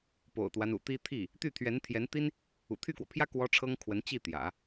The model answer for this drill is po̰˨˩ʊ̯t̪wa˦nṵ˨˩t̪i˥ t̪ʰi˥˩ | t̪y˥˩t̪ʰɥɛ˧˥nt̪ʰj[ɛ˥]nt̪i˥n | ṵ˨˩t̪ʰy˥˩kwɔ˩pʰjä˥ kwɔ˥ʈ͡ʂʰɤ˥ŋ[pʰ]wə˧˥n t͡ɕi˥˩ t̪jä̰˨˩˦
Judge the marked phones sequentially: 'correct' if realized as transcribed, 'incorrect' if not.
incorrect: ɛ˧˥, incorrect: kʰ

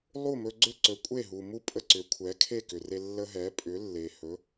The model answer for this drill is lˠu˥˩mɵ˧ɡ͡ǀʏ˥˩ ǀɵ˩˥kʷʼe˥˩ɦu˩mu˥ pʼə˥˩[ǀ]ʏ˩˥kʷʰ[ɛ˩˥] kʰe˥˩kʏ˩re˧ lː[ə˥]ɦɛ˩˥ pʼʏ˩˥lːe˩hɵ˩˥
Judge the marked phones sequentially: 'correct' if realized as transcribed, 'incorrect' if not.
correct, correct, incorrect: ə˧

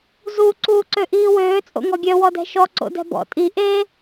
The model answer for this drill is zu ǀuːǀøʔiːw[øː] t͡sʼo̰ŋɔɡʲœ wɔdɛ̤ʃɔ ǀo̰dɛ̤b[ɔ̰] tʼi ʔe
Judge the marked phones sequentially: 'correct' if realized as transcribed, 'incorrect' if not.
correct, correct

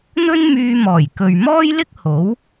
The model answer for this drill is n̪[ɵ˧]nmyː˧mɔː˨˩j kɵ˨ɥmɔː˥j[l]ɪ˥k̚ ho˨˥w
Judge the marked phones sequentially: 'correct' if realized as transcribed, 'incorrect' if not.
incorrect: ɵ˥, correct

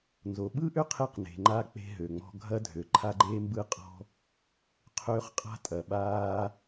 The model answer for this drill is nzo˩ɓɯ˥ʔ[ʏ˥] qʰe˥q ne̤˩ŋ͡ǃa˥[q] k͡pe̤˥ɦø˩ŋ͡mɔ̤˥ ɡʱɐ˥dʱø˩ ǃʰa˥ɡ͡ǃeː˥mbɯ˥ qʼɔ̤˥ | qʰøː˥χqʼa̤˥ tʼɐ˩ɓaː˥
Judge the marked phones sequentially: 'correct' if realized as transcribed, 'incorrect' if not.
correct, incorrect: none

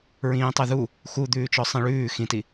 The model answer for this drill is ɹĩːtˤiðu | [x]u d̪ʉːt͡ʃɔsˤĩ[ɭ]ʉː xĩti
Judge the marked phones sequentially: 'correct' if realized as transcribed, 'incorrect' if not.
correct, correct

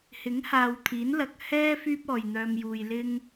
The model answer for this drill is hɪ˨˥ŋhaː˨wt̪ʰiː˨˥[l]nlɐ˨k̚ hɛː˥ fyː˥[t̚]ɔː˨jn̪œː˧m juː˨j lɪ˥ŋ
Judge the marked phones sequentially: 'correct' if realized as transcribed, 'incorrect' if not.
incorrect: none, incorrect: p̚

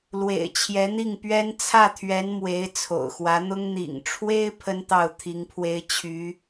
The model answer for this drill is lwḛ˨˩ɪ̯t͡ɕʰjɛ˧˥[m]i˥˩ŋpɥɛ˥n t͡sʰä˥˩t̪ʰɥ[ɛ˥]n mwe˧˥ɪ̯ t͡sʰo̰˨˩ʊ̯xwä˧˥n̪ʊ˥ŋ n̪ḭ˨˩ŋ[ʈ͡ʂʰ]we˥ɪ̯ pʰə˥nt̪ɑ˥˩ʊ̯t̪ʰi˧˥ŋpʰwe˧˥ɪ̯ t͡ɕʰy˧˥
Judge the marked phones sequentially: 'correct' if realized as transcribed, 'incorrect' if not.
incorrect: n̪, incorrect: ɛ˧˥, correct

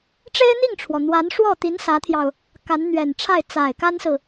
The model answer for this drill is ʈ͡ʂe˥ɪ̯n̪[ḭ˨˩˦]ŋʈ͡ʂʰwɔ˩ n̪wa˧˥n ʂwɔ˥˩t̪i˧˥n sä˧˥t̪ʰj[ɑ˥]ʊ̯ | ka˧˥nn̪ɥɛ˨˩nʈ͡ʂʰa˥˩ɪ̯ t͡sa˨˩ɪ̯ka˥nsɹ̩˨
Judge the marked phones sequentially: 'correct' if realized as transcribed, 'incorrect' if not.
incorrect: i˥˩, incorrect: ɑ˧

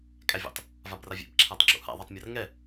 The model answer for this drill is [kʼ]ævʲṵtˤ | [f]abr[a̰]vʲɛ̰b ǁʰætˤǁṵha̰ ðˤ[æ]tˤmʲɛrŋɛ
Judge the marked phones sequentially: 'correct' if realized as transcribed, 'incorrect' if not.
correct, incorrect: v, incorrect: a, correct

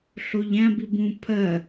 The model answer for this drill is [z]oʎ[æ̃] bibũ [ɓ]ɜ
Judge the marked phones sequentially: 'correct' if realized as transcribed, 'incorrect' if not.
incorrect: ɬ, correct, incorrect: pʰ

